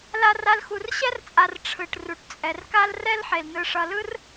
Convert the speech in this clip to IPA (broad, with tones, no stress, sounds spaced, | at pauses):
l a˦ r a˦ l x u˨ r ɕ ɛ˦ r t͡sʼ a˨ r ʈ͡ʂʰ ɯ˩ ʈ r u˩ ʈ t͡sʼ ɛ˩ r k a˦ l r ɛ˥ l ħ e˩ l n ɯ˨ ʂ ʌ˨ l ɯ˥ r